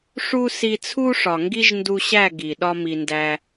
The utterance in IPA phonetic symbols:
ʂ u˦ s i˧ t͡sʰ u˦ ʂ ɒ˨ ŋ ɡ i˦ ʒ n d u˧ ɕ æ˦˨ ɡ i˨ ɗ ɒ˦ m i˧ n d æ˦

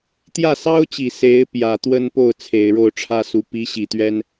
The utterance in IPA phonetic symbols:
t̪ j ä˥˩ s ɑ˥ ʊ̯ t͡ɕ i˨˩ s e˧˥ ɪ̯ p j ä˨˩ t̪ w ə˥ n p o˥˩ ʊ̯ t͡sʰ e˨˩ ɪ̯ ɻ o˥˩ ʊ̯ ʈ͡ʂʰ ä˥ s u˧˥ p i˧˥ ɕ i˨˩ t̪ ɥ ɛ˥ n

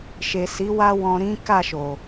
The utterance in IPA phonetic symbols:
ʃ e˨ s i˨˦ w a˦ w ɔ̃˧ ɾ ĩ˦ k a˦˨ ʃ o˨

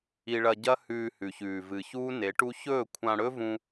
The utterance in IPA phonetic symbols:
i˧ ɭ ɐ˧ ɟ ɐ˦ h ʉː˧ h ʉ˨ ç ʉː˨ v ɨ˨ ç uː˦ n e˨˦ ʈ u˦ ç ɵː˦˨ kʷʰ ã˧ ɽ ɵ˦ v ũ˧

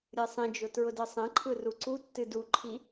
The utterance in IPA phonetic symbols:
ɾʲ ɯ sˤ ĩ d͡ʒ ʊ t ɹ ʊ d ɯ sˤ ẽ ǃʰ ɯ r u ǀ u tː ɨ d u ǃʰ i

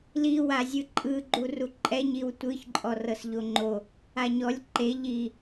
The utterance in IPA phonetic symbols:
l i w a zʲ ɯ ǃʼ ɯ ɡ͡ǃ u r u ǃʼ ɛ ɲ i w tʷ ɯ ç ǃʼ ɔ r ɤ s ʎ o ŋ͡ǃ o | a ɲ ɔ lʲ ǃ e ʎ i

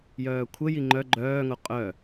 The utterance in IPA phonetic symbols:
j œː kʷʰ ə j i ŋ͡ǃ œ ɡ͡ǃ œː ŋ o qʼ œ

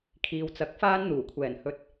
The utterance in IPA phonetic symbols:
kʰ iː˨ w t͡s ɐ˨˥ k̚ f aː˧ n n̪ uː˨˩ kʷʰ ɛː˨˩ n h ɵ˨ t̚

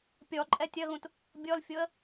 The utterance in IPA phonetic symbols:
pʲ ɔ ǃʼ ɛ tʲ ɐ ɣ ũ t | bʲ ɔ l fʲ o ə̯

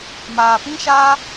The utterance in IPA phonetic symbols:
m aː˨ p ĩ˦ ʃ aː˦

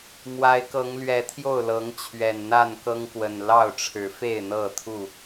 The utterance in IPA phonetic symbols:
m w a˨˦ ɪ̯ k ɤ˨˦ ŋ l ɥ ɛ˨˦ t̪ʰ j o˥˨ ʊ̯ l ɤ˨˦ ŋ t͡ɕʰ ɥ ɛ˨˩ n n̪ a˥˨ n k ɤ˦ ŋ k w ə˨˩ n l ɑ˥˨ ʊ̯ ʈ͡ʂʰ ɻ̩˨˦ f e˥˨ ɪ̯ n̪ ɤ˥˨ t̪ʰ u˥˨

